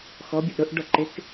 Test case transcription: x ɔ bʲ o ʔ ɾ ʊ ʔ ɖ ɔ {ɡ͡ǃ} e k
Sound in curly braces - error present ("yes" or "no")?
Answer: yes